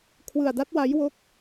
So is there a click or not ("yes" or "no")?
no